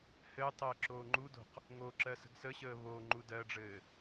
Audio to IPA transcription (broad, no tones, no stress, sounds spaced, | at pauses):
h ɘː tˤ əː ǁ oː ŋ͡ǃ u d o̤ q | ŋ o ǁ ɜ s ə̤ ɡ s ə ɕ əː β o ŋ͡ǃ u d ɜ ɖ͡ʐ ɘː